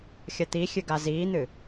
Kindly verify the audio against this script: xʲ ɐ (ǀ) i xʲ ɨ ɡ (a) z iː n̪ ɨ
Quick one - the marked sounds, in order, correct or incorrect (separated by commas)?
incorrect, correct